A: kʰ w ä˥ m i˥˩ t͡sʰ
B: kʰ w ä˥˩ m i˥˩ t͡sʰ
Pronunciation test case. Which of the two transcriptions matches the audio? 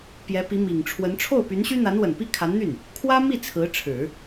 A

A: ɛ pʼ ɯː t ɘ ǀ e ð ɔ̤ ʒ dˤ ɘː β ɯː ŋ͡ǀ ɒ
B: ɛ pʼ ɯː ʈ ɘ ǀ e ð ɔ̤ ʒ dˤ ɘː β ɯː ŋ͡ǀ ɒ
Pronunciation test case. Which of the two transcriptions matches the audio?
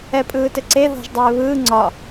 A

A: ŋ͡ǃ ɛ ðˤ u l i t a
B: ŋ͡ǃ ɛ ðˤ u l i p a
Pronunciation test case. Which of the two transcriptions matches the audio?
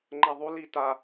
A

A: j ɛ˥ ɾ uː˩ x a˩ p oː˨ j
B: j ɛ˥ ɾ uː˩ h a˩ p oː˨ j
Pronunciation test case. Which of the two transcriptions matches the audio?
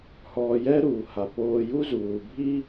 B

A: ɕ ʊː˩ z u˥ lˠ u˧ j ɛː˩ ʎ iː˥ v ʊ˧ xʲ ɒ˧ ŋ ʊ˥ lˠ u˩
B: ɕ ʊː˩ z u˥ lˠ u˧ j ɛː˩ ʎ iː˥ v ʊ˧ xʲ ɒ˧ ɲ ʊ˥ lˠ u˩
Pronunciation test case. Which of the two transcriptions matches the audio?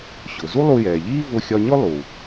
B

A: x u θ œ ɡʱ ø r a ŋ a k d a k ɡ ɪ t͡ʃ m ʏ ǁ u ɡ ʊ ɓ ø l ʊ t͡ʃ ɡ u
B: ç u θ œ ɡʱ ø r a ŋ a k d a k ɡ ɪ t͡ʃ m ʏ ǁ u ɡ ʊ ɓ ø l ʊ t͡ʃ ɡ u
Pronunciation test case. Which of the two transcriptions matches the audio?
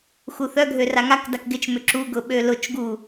A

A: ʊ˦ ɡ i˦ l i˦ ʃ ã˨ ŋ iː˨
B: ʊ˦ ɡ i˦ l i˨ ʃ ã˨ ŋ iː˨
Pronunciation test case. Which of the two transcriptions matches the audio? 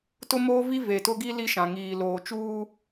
A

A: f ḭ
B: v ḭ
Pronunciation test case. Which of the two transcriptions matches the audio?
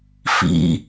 A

